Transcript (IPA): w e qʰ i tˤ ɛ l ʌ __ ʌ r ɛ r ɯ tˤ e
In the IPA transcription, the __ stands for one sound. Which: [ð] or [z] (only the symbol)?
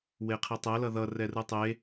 ð